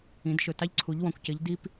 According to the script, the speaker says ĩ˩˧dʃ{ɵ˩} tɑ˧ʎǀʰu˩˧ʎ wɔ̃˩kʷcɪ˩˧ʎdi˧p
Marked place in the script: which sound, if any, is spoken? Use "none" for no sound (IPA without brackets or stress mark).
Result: ɵ˩